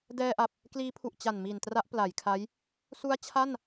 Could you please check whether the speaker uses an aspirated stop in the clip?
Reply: yes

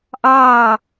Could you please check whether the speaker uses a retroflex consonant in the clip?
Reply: no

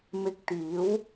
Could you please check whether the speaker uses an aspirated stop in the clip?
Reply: no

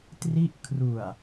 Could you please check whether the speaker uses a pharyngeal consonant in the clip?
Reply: no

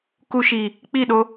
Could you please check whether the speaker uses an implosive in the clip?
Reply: yes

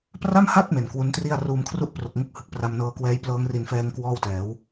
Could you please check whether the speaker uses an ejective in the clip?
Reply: no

